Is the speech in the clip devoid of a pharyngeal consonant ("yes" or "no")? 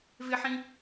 no